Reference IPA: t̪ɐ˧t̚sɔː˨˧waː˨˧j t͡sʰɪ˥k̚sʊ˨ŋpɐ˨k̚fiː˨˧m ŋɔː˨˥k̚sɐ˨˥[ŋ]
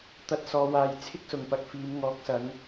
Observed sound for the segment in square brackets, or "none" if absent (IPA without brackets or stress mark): ŋ